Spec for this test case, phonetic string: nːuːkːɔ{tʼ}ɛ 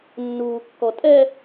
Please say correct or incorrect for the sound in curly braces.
correct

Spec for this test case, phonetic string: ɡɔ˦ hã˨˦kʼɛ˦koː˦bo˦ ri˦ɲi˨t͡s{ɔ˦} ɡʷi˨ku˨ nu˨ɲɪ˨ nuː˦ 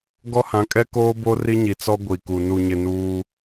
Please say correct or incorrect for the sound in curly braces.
correct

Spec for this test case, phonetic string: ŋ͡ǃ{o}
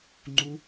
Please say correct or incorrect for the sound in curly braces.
incorrect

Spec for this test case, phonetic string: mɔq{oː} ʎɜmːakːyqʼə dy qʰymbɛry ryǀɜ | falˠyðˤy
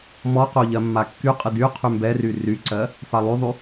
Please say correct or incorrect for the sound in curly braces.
incorrect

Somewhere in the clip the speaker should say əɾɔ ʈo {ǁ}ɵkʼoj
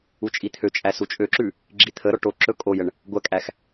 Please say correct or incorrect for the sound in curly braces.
correct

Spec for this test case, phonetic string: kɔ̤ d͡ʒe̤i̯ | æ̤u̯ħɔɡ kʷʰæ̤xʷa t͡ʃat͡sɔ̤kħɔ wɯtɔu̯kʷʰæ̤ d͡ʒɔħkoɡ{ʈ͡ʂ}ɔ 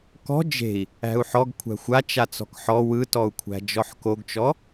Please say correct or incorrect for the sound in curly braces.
incorrect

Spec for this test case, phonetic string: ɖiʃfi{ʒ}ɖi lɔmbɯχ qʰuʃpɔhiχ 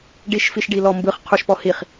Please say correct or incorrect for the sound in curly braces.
incorrect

